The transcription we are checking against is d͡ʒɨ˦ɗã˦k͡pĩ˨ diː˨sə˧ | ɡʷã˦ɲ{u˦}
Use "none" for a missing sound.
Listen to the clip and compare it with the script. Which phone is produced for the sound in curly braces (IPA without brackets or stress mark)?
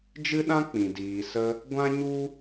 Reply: u˦